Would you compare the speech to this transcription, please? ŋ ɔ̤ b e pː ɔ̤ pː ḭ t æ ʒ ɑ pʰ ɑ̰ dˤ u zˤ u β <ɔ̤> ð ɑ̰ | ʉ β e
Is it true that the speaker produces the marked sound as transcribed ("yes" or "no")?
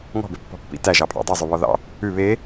no